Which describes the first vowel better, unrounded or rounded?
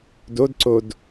rounded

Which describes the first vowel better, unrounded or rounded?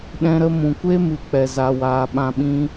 unrounded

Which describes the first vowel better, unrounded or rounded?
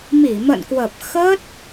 unrounded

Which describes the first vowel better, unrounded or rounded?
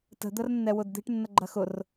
unrounded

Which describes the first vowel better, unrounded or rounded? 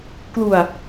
rounded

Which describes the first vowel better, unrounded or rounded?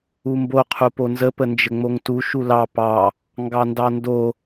rounded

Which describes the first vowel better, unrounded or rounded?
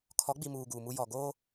rounded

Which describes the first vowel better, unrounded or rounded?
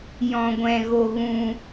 rounded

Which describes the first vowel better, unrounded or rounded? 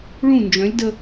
rounded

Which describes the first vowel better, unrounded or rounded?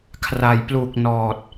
unrounded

